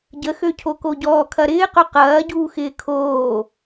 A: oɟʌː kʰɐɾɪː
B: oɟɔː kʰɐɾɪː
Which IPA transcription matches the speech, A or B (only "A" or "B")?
B